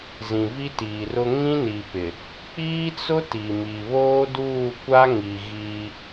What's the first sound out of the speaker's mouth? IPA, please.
z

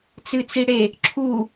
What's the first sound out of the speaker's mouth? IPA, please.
t͡s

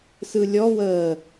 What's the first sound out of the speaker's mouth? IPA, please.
s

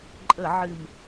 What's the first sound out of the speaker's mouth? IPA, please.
ǃʼ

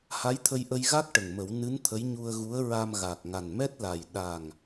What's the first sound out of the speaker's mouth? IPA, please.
h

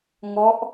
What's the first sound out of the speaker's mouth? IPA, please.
ŋ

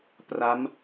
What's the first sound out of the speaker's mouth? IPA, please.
p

